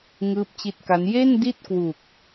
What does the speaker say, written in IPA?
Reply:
ŋ ɯː˦˥ p̚ t͡ɕ i˦˥ t̚ k a˦˥ n j e˥˩ n d i˥˩ t̚ k w u˨˩ k̚

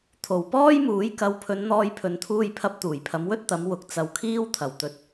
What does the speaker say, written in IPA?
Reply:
t̪ʰ o˨˩ w p ɔː˥ j m uː˨˥ j k ɐ˨˧ w pʰ ɵ˨˧ n n̪ ɔː˧ j pʰ ɵ˨ n t̪ʰ uː˧ j pʰ ɐ˧ p̚ t̪ uː˨˩ j pʰ ɐ˨˧ m w ɵ˥ t̚ t̪ ɐ˨˧ m w ʊ˨ k̚ t͡s ɐ˧ w kʰ iː˥ w t̪ʰ ɐ˨˩ w t̪ ɵ˨ t̚

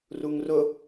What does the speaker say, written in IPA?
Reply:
r u ŋ r ʊ

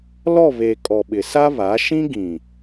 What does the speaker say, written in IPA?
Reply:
l ɔ˦˨ β eː˨ kʼ ɔ˨ ɓ ɪ˨ s a˦ β a˨˦ ʃ ĩ˦ ɡ ĩ˨

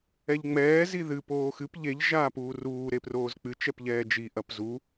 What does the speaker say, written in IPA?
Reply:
ɛ ʎ ŋ͡m ɛː z i ð ɨ p oː x ɨ p ʎ e ʎ ʒ aː p uː r uː ɾ e p r oː z k͡p ɨ t͡ʃ ɛ p ʎ ɛː d͡ʒ i ʔ ɐ p z u

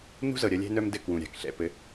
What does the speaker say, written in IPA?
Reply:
n ṳ˦ z ɤ˨ ɾʲ ɐ˧ lʲ ɛ̤˦ n œ˦ m d ɘ˦˨ k w ũ˨ ɾʲ a̤˨ k ɬ ɛ̰˨ p ɘ˧

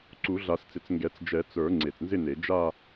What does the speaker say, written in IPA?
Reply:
ǀ u˨˩˦ ɮ a˨˩˦ s t͡s ɪ˨˩ t͡s ŋ ɡ ɛ˨˩˦ t͡s d͡ʒ ɛ˨˩˦ t͡s ə˞˨˩˦ ŋ͡ǀ e˨˩ t͡s n z ɪ˥˧ n e˨˩˦ d͡ʒ a˥˧

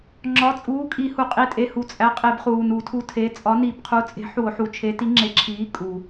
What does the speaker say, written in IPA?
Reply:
ŋ͡ǁ ɒ˩˧˩ t͡sʼ uː˩˧˩ kʼ i˧˩˧ h u˩ qʼ i˩˧˩ tʼ e˩˧˩ h u˩ t͡sʼ æ˩˧˩ qʼ e˧˩˧ b χ uː˩ n u˧˩˧ tʰ u˨˥ tʰ e˩˧˩ t͡sʼ ɒ˨˥ n i˧˩˧ b qʰ u˨˥ t͡sʼ e̤˨˥ ħ u˧˩˧ o̯ ħ u˩˧˩ t͡ʃʰ e˨˥ t i˨˥ ŋ͡ǁ e˨˥ ǁʰ iː˨˥ kʼ u˩

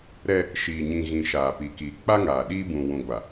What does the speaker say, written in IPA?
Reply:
ɾ ɛ˦ | ʃ iː˨ ɲ ĩ˨ ɣ ĩ˨ ʃ aː˨ p i˨ k iː˨ k͡p a˦ ŋ aː˨ ɗ iː˦ b ũ˨ w ũ˨ ɡʷ a˨

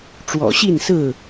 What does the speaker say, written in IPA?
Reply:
ʈ͡ʂ w ɔ̰˨˩ ɕ i˥˨ n s ɹ̩˥˨

